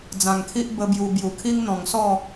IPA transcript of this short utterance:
d͡z ã˨˩ ŋ kʰ i˦ ʔ b ə˦ b j u˧ b j u˨˩ kʰ i˦ ŋ n̪ ɔ̃˨˩ ŋ s ɔ˥˧

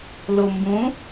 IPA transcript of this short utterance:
l o m b ũ

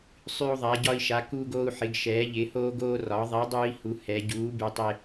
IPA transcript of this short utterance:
sˤ y˧ u̯ ðˤ a˩˧ ɟ ɒ˧ i̯ ʃ a˩˧ k uː˧ ɡ oː˧ u̯ ħ ɪ˩˧ ɡ ʃ ɛː˩˧ ʎ ɪ˩˧ h oː˧ ɡ oː˧ r ɒ˩˥ ðˤ ɛ˩˥ dˤ uː˧ i̯ h u˩˧ h ɛ˩˧ ɟ uː˩˥ b y˩˧ tˤ ɪ˧

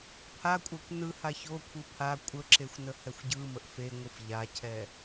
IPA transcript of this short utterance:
pʰ a kʷʼ a kʷ n ɯ h a ç o kʷʰ ɯ pʰ a kʷʼ ə ǁ e xʷ n ə h ɛ xʷ ɟ ɯ m ə ʔ f e ŋʷ ɯ f ʎ a cʰ ɛ

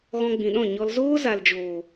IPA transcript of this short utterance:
ɣ ɔ̃˧ ɡ͡b ĩ˨ ɗ ɔ̃˦˨ ɲ ɔ˧ l z oː˦ z a˨ l d͡ʒ oː˨

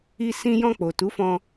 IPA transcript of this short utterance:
i˧ s ĩ˧ j ɔ̃˧ k͡p o˨ t u˨˦ f ɔ̃˧

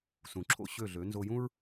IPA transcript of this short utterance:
s ũ˩ ǁʰ o̰˧ ɕ ø˥˩ ɮ ø˩˥ n z o˧ j ũ˥ ɹ

